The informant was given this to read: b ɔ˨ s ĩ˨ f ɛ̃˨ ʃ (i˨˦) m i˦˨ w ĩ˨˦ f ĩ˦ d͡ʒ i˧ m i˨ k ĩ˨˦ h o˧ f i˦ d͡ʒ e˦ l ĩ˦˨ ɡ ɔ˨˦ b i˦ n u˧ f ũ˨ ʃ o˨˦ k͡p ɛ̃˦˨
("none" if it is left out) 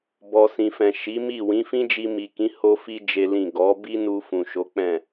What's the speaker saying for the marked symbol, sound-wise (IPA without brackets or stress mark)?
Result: i˨˦